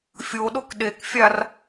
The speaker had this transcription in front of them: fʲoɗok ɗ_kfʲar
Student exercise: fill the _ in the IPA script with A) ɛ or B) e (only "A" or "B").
B